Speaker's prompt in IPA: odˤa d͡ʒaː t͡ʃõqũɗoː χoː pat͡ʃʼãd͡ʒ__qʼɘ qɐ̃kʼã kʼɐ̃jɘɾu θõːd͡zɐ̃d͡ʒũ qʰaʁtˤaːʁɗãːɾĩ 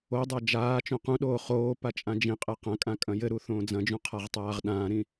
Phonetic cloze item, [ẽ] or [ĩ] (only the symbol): ĩ